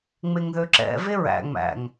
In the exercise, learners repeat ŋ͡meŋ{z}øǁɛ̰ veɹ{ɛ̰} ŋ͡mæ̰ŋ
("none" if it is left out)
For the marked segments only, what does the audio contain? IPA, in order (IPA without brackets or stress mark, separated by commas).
ð, æ̰